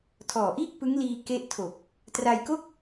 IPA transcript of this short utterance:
tʰ ɔː˨˩ ʔ iː˥˩ k̚ p ɯ˦˥ ŋ l iː˧ k e˥˩ ʔ tʰ o˨˩ k̚ | t r a˧ j k o˥˩ k̚

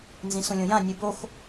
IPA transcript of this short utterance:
n z ĩ s ũ lʲ õ j ã nʲ u b o x

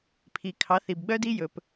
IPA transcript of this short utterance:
pʰ i˨ kʰ ɑ˨˦ θ i˨ b ɡ͡b œ˦ d i˦ j ɵ˨ p

